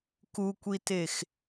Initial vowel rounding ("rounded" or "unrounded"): rounded